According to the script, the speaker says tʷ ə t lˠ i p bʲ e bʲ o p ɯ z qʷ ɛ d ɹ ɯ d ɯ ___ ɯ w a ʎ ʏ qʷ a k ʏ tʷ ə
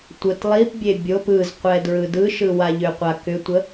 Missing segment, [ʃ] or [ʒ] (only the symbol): ʃ